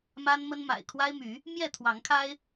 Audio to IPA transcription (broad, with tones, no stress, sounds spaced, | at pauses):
m a˦ n m ə˦ n m a̰˨˩ ɪ̯ kʰ w a˦ ɪ̯ m y˨˦ | m j ɛ˥˨ t̪ʰ w ɑ˨˦ ŋ kʰ a˦ ɪ̯